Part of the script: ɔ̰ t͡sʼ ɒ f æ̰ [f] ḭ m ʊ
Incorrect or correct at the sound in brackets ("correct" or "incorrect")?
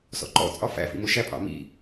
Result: correct